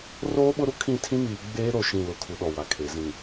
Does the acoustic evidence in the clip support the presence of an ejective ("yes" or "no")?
no